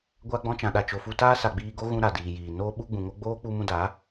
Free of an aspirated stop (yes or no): yes